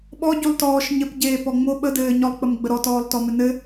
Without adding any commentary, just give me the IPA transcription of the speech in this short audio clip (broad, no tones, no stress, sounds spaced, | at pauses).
ɓ ɔ ɟ u lˠ t ɔː ʃ ɲ ɘ p ɟ eː p ɔ ŋ͡m o ɓ ə d ɘː ɲ ɔ lˠ k͡p ə m ɡ͡b ə ɾ ɔ t ɔː lˠ t ɔ m ɘ n ɘ